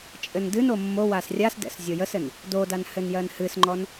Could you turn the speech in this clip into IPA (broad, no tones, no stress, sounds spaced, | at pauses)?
t͡ʃʼ ɘ n d ɨ n o mː o w a s rʲ a s d ɛ̰ s zʲ o j ə s ɘ n | d o d a n h ɘ n j ɜ n h ɨ s ŋ͡ǃ ɔ n